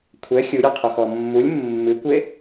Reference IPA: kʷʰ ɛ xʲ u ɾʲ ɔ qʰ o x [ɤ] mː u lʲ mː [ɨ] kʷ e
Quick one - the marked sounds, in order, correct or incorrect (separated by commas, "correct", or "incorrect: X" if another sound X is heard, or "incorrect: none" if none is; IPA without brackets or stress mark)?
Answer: incorrect: ɔ, correct